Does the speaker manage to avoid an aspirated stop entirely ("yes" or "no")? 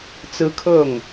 no